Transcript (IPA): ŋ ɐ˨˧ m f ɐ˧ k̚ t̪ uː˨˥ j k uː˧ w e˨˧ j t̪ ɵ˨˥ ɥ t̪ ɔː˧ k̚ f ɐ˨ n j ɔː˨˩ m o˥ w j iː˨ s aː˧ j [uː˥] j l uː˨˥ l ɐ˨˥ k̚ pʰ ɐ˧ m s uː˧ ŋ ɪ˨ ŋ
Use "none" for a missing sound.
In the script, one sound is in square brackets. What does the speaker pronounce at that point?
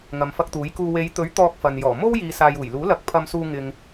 uː˨˩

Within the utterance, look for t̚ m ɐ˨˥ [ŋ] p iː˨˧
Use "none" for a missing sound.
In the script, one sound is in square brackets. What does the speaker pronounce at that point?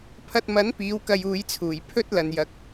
n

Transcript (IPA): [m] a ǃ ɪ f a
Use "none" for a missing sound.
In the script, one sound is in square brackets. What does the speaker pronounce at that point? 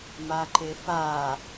m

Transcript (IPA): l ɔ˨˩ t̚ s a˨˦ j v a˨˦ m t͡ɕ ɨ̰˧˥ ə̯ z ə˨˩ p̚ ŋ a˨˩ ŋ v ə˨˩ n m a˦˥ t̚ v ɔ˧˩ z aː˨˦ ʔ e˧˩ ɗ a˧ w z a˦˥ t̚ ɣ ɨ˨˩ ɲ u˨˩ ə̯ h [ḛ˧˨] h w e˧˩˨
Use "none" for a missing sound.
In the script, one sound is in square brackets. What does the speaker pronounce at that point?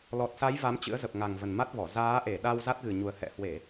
ɛ̰˧˨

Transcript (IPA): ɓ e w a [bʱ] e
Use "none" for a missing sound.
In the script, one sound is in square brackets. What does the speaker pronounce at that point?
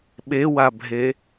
bʱ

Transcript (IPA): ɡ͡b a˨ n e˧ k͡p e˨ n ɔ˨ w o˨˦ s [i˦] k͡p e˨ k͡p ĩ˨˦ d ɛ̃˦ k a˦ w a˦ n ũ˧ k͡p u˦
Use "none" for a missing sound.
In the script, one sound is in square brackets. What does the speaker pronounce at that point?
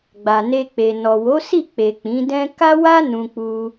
i˦˨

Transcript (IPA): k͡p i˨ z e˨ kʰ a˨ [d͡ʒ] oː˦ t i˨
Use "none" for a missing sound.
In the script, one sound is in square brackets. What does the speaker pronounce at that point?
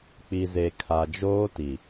d͡ʒ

